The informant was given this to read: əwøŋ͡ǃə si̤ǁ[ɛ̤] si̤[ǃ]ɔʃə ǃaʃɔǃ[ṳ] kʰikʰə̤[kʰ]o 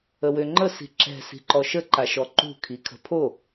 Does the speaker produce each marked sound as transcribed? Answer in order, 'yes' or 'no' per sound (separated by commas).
yes, yes, yes, no